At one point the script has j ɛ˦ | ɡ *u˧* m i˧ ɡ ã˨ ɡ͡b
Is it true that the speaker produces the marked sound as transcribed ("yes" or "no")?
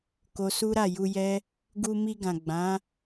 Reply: yes